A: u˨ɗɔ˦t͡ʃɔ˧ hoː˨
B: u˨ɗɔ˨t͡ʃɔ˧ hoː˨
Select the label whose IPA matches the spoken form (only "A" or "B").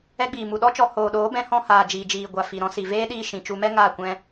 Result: A